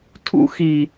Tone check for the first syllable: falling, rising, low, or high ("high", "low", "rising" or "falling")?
high